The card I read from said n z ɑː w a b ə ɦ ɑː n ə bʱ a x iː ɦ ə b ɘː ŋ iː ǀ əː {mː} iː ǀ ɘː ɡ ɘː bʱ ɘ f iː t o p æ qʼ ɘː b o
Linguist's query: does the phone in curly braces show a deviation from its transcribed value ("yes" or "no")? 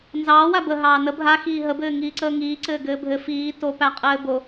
yes